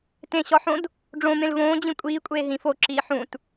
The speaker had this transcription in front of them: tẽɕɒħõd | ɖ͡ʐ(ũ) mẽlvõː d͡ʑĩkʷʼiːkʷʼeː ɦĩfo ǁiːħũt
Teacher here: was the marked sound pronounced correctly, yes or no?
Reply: no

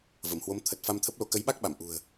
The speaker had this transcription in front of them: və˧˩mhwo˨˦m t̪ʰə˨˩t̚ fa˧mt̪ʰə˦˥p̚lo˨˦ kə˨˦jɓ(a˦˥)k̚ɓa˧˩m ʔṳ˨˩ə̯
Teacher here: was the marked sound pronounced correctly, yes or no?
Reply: yes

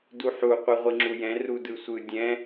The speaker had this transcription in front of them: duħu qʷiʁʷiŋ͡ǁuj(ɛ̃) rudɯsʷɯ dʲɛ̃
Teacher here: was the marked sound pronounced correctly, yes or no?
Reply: yes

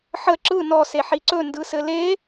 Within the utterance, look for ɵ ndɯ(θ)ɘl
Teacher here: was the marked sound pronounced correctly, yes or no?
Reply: no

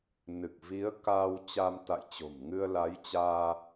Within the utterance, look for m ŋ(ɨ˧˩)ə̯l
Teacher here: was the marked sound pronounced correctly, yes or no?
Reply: no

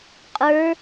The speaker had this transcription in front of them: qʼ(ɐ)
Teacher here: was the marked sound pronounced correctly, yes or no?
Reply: no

